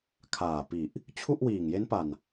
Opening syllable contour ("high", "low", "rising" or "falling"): low